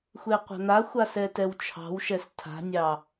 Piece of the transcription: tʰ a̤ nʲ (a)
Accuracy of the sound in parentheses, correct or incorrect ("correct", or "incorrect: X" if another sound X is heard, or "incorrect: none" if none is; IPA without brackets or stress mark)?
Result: incorrect: ɑ